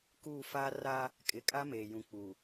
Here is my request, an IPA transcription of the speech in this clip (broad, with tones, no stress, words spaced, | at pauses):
kuː˦˨faː˦ ra˦ | kʼɪ˨kʼa˦ meː˨jũ˨ k͡pu˨